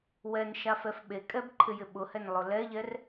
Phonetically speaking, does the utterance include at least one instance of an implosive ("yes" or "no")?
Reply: yes